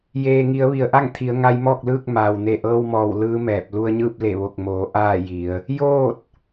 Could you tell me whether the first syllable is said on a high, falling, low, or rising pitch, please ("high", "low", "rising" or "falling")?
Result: low